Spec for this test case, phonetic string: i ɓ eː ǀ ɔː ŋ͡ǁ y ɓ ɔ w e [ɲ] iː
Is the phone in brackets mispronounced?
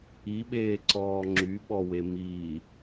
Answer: yes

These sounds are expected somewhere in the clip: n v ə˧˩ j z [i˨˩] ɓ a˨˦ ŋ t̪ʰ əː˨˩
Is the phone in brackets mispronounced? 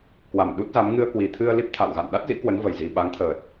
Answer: no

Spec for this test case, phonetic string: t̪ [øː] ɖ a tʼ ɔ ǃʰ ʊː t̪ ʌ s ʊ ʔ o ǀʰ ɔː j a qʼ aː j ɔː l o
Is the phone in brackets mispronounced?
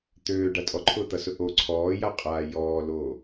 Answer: no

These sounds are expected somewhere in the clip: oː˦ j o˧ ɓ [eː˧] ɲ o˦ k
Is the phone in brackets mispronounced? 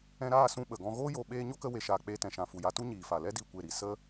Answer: yes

